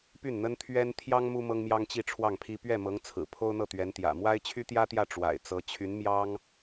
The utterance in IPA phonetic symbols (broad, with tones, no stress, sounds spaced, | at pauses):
p y˥˩ n n̪ ə˥ n t̪ʰ ɥ ɛ˥ n t̪ʰ j ɑ˥ ŋ m u˥ m ɤ˥ ŋ m j ɑ˥ ŋ t͡ɕ i˥˧ ʈ͡ʂʰ w ɑ˥˩ ŋ pʰ i˥ p ɥ ɛ˥˩ m ɤ˧˥ ŋ t͡sʰ ɹ̩˨˩ pʰ o˥ ʊ̯ n̪ ɤ˥˩ t̪ ɥ ɛ˧˥ n t̪ j ä̰˨˩ m w a˥ ɪ̯ t͡ɕʰ y˥ t̪ j ä˥ t̪ j ä˥˩ ʈ͡ʂ w a̰˨˩ ɪ̯ t͡s ɤ˧˥ t͡ɕʰ y˧˥ n m j ɑ˥ ŋ